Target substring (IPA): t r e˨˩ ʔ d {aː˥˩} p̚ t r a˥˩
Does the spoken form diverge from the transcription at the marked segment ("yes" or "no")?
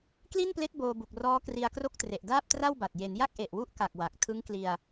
no